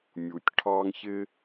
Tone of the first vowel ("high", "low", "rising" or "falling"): low